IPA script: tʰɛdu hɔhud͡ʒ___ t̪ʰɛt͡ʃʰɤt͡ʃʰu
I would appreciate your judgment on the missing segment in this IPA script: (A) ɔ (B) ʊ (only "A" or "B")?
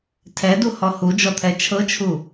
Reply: A